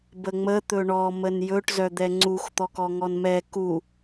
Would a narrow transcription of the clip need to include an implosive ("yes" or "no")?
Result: no